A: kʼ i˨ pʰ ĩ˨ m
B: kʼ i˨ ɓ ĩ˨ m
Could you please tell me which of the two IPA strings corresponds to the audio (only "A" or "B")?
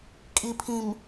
A